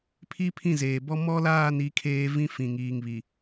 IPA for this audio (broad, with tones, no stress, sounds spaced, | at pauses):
pʰ i˦ pʰ ĩ˦˨ z eː˨ b ɔ˦ m ɔ˦ l aː˦˨ n i˨˦ kʰ eː˦ v ĩ˦ f ĩ˨ ŋ iː˨ ŋ β i˨